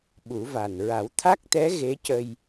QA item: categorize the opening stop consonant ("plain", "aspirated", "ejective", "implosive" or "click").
implosive